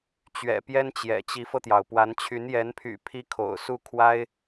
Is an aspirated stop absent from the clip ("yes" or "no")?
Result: no